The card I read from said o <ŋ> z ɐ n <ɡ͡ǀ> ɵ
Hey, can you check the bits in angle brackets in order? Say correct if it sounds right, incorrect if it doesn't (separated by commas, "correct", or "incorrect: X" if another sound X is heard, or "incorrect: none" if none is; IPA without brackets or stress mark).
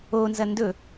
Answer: incorrect: n, incorrect: d